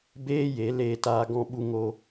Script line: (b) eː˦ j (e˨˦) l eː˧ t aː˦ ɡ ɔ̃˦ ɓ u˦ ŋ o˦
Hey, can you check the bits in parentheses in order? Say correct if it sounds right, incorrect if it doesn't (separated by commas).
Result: correct, correct